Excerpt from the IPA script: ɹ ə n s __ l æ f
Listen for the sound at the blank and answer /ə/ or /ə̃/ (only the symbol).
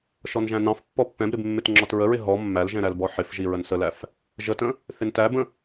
ə